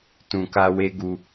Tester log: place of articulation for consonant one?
alveolar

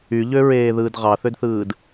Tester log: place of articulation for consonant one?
palatal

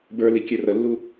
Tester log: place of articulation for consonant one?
labial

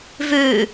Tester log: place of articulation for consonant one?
labial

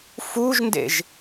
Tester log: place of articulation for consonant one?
labial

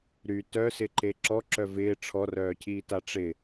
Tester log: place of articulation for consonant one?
alveolar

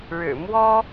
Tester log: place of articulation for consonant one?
retroflex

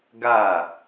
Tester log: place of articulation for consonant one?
velar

